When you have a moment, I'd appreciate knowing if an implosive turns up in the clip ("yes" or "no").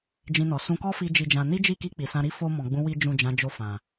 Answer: no